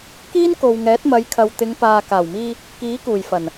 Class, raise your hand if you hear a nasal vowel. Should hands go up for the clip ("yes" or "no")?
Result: no